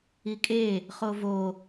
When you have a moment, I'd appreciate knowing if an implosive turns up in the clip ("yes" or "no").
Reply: no